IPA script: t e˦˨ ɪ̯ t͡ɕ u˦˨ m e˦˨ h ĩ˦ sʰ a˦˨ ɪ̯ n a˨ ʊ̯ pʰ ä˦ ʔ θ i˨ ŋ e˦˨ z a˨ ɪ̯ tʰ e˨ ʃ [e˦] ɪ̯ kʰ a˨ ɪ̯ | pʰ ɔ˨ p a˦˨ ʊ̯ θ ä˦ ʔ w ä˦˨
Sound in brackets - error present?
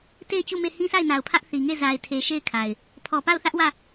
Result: yes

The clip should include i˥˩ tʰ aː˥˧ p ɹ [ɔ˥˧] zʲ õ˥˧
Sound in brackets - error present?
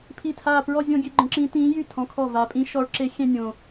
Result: no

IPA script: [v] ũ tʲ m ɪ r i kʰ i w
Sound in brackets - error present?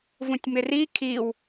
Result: no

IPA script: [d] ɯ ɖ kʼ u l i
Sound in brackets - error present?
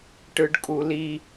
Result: yes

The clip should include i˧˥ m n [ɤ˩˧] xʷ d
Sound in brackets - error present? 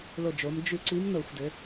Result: yes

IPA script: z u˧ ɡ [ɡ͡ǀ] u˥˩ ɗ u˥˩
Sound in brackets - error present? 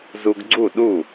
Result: no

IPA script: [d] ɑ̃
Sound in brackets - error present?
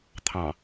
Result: yes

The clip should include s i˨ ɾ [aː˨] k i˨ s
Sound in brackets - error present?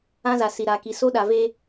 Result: no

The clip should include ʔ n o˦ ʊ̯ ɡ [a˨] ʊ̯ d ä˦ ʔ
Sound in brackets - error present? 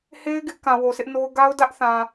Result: yes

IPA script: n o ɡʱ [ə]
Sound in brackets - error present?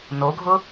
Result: yes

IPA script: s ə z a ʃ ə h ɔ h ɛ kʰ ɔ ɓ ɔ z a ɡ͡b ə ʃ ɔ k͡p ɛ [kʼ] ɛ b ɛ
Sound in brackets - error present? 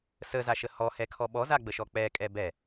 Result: no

